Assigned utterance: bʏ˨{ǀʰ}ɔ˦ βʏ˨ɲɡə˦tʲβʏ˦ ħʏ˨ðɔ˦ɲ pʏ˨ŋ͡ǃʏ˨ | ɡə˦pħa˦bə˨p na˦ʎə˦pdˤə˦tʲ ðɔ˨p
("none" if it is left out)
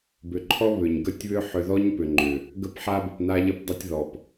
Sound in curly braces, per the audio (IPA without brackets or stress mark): ǃʰ